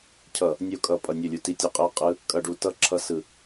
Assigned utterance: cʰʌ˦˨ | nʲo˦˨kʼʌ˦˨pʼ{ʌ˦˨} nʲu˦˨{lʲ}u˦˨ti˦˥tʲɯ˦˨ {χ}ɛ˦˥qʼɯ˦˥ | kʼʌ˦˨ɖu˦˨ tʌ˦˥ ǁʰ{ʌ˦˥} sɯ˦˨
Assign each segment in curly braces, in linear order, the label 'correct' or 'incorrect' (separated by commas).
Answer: correct, correct, incorrect, correct